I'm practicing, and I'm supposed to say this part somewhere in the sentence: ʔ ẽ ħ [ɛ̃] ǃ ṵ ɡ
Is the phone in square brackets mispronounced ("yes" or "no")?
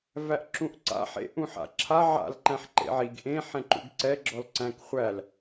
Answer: no